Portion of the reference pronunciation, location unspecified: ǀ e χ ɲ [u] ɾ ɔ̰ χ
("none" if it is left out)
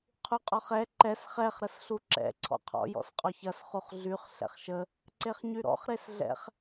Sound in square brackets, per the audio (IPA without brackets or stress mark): y